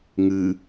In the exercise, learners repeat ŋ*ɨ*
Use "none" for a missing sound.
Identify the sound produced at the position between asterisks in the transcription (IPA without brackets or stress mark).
ɨ